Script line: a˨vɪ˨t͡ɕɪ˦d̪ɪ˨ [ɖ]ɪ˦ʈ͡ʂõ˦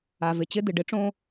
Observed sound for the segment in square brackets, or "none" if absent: ɖ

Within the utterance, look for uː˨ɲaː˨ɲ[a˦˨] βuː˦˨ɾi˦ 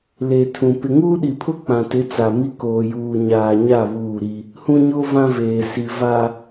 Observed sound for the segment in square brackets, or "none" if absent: a˦˨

